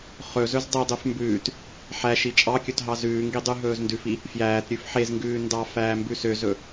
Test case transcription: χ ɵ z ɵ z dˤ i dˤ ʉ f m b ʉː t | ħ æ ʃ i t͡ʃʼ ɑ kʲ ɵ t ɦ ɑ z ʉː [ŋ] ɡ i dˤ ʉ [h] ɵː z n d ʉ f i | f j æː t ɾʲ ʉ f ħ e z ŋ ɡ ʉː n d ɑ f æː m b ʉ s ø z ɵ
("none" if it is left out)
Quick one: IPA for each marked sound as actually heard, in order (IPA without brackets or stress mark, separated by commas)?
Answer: ŋ, ɦ